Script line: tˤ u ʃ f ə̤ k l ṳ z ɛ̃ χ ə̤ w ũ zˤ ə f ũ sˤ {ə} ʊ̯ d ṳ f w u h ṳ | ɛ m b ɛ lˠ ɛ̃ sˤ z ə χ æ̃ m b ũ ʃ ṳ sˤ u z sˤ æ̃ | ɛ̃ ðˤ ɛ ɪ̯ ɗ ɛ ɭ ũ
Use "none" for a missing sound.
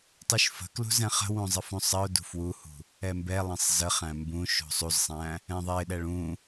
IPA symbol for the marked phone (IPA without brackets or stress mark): ə